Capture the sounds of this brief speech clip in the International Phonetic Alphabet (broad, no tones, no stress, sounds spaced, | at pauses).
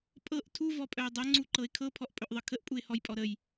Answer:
pʼ ɤ ʔ tʰ u v ɔ pʼ œ ɪ̯ dˤ ɤ ŋ͡ǀ u ǃ ɤ ɪ̯ kʰ ɤ pʰ ɔ ʔ pʼ ɵ ʔ ðˤ ɤ kʰ ə ʔ pʼ u ɪ̯ h ɔ j pʼ ɔ ɾ ə j